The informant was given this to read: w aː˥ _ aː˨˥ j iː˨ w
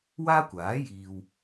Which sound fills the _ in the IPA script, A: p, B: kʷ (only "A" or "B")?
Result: B